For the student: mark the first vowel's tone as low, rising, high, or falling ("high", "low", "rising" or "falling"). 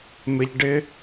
high